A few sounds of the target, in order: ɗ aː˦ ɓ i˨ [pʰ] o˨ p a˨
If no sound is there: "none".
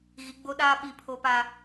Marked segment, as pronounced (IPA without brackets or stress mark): pʰ